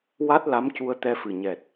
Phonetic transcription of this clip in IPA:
wa˦˥t̚la˧˥m cu˧ə̯t̪ɛ˧fɨ˨˩ɲɛ˨˩t̚

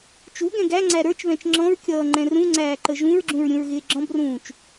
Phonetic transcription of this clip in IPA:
t͡ʃu ɡɛ̃ɡæŋ͡ǀæ ɾə˞t͡ʃβɛ̃t͡ʃ ŋ͡ǁɔ̃ɹkʲʌː ŋ͡ǃɛ̃rũŋ͡ǀæː ǃəʒũɹɡ͡ǁũɹ ɾʲũɹɣɪːɡ͡ǁɔ̃brũːt͡ʃ

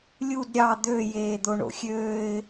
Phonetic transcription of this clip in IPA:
lʲud ɾʲɑ d̪ø jeːd̪oɳo̰xʲøːɪ̯

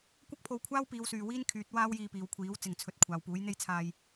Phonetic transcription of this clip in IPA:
kʷɐ˥k̚pʰo˧wkʷʰaː˥wpiː˨˧w syː˨wiː˥nkʰyː˨˥t̚ waː˥wjiː˧piː˨wkʷʰiː˨˥w t͡sɪ˨ŋt͡sʰɵ˨˥t̚ kʷʰaː˨wpuː˨˥jn̪e˥jt͡sʰaː˧j

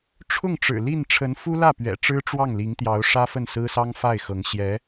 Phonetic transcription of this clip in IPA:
ʈ͡ʂʰʊ˥˩ŋʈ͡ʂɻ̩˨˩li˥˩n ʈ͡ʂʰə˧˥nfu˥ lä˥˩pɥɛ̰˨˩ ʈ͡ʂɻ̩˥ʈ͡ʂwɑ˥˩ŋli˧˥ŋt̪jɑ˧˥ʊ̯ ʂä˥fə˥˩n sɹ̩˥sɑ˥ŋ fa˥˩ɪ̯xɤ˧˥ŋ ɕjɛ˧˥

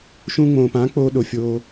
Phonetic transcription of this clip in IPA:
ʃũː˧ŋ͡mõː˨pãː˨˦ k͡poː˧ ɗo˨fʲoː˧

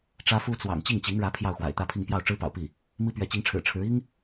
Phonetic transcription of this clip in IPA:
ʈ͡ʂä˥fu˥ t͡swɑ̰˨˩ŋ t͡ɕi˥˩ŋt͡ɕi˧˥ŋɻä˧˥ pʰjɑ˥˩ʊ̯xwa̰˨˩ɪ̯t̪ä˥˧pʰi˥˧ŋ pjɑ˥˩ʊ̯ʈ͡ʂɻ̩˥pɑ̰˨˩ʊ̯pi˥˩ | mi˥pɥɛ˧˥t͡ɕi˧˥ŋʈ͡ʂʰɻ̩˨˩ ʈ͡ʂʰɻ̩˧˥ i˥ŋ

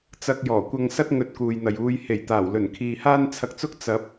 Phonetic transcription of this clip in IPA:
t͡sɐ˧k̚jɔː˨˩kʷɐ˧ŋsɐ˥t̚ ŋɵ˧t̚kuː˨jn̪ɐ˨j uː˧j he˨˩jt̪aː˨˩wlɵ˨˩n kʰiː˨haː˥nt͡sʰɐ˧k̚t͡sʊ˥k̚ t͡sɐ˨˥p̚

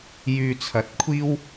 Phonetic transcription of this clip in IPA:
jyː˧t͡sʰɐ˨˥t̚kʷʰiː˥w

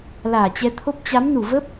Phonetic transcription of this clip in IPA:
laː˧˩t͡ɕɛ˨˦t̪ʰo˦˥p̚ t͡ɕa˨˦mnu˧˩və˦˥p̚

